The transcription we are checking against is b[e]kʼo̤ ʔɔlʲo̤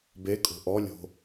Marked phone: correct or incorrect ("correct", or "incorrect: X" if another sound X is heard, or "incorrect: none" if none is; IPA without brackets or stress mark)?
correct